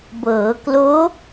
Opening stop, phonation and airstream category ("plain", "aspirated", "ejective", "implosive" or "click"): plain